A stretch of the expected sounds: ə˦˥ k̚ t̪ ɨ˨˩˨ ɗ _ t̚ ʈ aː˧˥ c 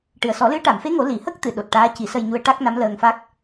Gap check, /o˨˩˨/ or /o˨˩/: o˨˩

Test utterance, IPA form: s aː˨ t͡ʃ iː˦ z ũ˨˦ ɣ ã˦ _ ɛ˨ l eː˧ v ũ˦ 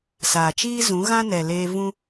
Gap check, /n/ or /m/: n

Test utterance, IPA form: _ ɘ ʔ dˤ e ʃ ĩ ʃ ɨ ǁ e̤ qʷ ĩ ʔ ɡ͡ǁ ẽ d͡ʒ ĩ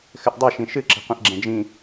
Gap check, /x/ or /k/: x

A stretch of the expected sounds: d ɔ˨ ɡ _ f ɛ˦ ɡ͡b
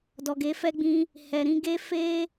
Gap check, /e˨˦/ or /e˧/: e˨˦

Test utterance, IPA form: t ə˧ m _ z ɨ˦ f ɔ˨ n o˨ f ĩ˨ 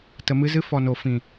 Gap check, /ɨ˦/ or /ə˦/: ɨ˦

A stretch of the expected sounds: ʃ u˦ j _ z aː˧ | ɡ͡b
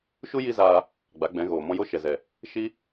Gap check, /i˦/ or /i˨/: i˦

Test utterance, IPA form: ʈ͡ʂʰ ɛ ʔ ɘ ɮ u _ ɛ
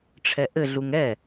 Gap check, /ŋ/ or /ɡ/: ŋ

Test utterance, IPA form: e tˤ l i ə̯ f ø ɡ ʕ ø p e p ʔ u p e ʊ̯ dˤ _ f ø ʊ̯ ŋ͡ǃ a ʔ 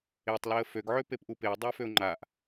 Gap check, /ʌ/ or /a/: a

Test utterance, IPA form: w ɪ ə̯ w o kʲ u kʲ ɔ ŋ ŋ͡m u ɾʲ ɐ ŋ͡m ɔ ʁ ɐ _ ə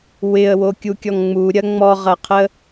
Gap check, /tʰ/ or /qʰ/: qʰ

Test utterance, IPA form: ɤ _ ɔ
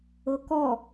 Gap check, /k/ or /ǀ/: k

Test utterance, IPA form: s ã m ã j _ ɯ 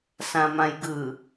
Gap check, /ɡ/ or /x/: ɡ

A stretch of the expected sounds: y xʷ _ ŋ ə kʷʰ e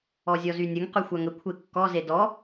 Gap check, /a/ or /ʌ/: a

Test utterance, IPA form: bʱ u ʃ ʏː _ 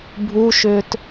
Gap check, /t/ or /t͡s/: t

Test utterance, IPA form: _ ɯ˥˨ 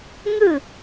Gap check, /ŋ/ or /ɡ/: ŋ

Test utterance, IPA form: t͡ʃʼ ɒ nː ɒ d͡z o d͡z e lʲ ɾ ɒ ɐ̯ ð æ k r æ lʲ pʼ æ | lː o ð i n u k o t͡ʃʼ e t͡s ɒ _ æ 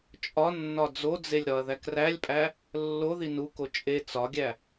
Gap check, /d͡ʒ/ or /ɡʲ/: ɡʲ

